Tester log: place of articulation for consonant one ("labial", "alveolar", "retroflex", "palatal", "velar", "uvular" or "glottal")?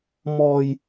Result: labial